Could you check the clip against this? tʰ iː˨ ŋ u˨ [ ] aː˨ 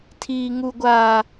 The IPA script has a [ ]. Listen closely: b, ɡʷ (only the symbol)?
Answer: ɡʷ